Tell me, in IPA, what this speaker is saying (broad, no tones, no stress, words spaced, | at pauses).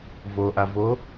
voʔavo